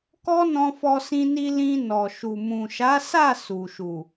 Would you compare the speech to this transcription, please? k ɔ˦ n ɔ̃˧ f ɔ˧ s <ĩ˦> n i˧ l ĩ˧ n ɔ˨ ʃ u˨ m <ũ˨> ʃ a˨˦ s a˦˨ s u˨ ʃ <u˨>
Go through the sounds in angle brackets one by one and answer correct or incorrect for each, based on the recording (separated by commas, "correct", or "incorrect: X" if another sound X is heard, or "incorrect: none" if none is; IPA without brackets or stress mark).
incorrect: ĩ˧, correct, correct